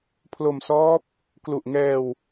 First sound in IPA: pʰ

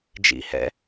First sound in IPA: d͡ʒ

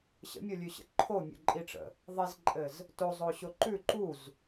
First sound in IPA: ɕ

